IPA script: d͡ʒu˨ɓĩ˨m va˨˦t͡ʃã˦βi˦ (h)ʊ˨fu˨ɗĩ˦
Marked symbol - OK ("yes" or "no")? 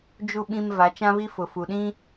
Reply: no